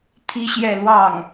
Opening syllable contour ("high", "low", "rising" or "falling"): high